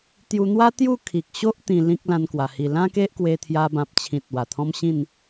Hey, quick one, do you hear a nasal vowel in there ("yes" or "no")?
yes